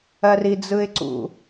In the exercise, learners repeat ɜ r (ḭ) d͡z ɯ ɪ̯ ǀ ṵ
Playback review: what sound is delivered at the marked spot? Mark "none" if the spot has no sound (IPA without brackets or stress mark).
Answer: i